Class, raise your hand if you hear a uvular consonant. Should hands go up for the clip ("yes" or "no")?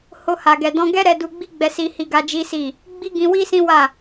no